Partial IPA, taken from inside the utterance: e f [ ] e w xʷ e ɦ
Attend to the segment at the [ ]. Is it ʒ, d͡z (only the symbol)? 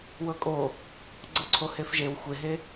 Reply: ʒ